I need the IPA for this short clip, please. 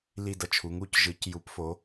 l i˥˧ d ʌ˥˩ t͡ʃʰ u˨˥ ŋ u˥˧ c ʒ ɯ˨˥ c j u˨˥ p f o˨˥

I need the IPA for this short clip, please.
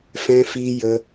f ɛ̃˧ f i˧ j ə˧

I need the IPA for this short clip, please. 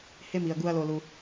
h e˦ m i˨ ɐ̯ ɡ u˦ ɐ̯ l o˧ l u˧

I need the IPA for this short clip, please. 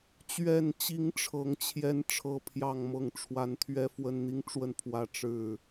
t͡ɕ ɥ ɛ˨˩ n t͡ɕ i˨˦ ŋ ʈ͡ʂʰ ɤ˨˦ ŋ t͡ɕʰ j ɛ˦ n ʈ͡ʂʰ ɤ˦ pʰ j ɑ˥˨ ŋ m ɤ˥˨ ŋ ʈ͡ʂʰ w a˨˦ n t̪ʰ ɥ ɛ˦ f w ə˦ n n̪ i˦ ŋ ʈ͡ʂ w ə˥˨ n pʰ w ä˥˨ ʈ͡ʂ ɻ̩˥˨

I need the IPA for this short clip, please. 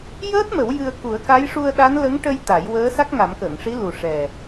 j əː˦˥ t̚ m ə˨˩˦ w j ɨ˧ ə̯ k u˨˩˦ ə̯ k a˧˥ j ʂ u˧ ə̯ ɗ a˧˥ n l ə˧˥ ŋ ʈ ə˧ j t̪ a˨˩˦ j w əː˧˥ s a˦˥ k̚ ŋ a˨˩˦ m k əː˨˩˨ ŋ ʂ i˧˥ l u˨˩ ʂ ɛ˨˩

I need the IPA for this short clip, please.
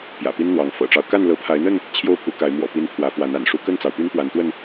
p j ä̰˨˩ p i˦ n n̪ w ɑ˨˦ ŋ f ɤ̰˨˩ ʈ͡ʂ ɑ˦ ʊ̯ k a˥˨ n l ɤ˨˦ pʰ a˨˦ ɪ̯ n̪ ə˥˨ n | t͡ɕʰ j o˥˨ ʊ̯ pʰ u˨˦ k a˨˦ ɪ̯ m w ɔ̰˨˩ p i˨˦ n pʰ w ä˨˦ f w a˨˦ n a̰˨˩ n ʂ u˦ k ə˥˨ n t͡s ɑ˩ ʊ̯ p y˦ n p w a˨˦ n t̪ w ə˥˨ n

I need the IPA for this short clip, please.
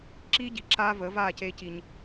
ǁ iː˦ ɟ i˨ ǁ aː˦ v əː˨˦ v aː˦˨ c eː˦ c i˦ ɲ

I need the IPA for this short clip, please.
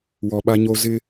w ɔ˨ ɓ a˦ ɲ o˦ z ɪ˦

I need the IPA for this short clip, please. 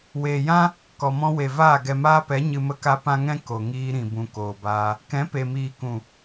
w eː˨ j ã˦ | k ɔ˨ m ɔ̃˧ w e˨ v aː˦˨ ɡ ɛ˨ m aː˧ p ɛ˨˦ ɲ ɨ˧ m ə˦ k a˦ p ã˦ ŋ ɛ̃˦ k o˨ ŋ iː˧ ɾ ĩ˨ b ũ˨ k oː˨ b aː˧ | k ɛ̃˨˦ p e˨ m iː˨ k ũ˨

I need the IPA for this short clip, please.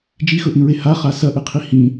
d͡ʒ i x ɵ ʔ ĩ ɹ e h a χ a s ɐ ʔ ɨ qʰ i h ĩ

